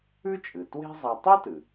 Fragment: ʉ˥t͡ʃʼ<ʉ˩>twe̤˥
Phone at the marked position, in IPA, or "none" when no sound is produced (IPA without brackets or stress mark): ɨ˩